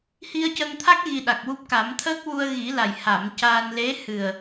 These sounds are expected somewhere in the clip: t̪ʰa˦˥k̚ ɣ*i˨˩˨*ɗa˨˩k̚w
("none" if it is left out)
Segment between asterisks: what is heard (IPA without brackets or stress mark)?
i˧